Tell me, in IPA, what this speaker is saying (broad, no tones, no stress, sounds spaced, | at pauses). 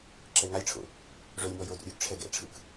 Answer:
ǁ ɛ ŋ a lʲ ʈ͡ʂʰ o̰ | ʐ o lʲ m ɔ j o d o̰ ɾʲ u ɡ ʈ͡ʂʰ ɛ ɡ ɛ̰ ʈ͡ʂʰ ɯ k